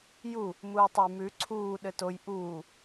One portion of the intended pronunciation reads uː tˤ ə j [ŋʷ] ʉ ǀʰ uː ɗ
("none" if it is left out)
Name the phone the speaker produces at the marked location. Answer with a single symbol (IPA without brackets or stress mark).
m